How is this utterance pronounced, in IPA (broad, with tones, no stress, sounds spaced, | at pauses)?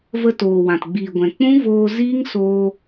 v ə˧ t oː˨ w ã˨ t ɡ͡b iː˨ ɡʷ ɛ̃˨ k͡p ũ˦ v oː˧ z iː˦ ŋ s oː˧